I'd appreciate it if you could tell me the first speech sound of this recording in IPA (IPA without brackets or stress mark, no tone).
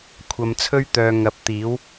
kʷʰ